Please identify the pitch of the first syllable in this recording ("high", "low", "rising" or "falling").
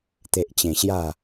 low